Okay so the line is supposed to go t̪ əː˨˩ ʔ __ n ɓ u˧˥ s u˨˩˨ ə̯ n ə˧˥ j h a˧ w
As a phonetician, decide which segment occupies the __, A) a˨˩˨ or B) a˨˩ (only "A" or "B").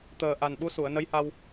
B